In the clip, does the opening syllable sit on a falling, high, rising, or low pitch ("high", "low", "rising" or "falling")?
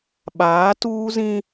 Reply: rising